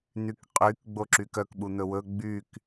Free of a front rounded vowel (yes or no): no